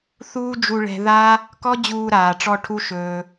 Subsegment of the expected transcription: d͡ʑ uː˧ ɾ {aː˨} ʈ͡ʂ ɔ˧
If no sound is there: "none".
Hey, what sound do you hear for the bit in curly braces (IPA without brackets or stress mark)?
aː˨